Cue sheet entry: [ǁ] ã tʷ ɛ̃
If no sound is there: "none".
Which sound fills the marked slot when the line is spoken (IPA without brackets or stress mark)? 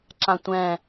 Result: ǁ